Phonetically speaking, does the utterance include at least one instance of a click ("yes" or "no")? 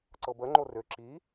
yes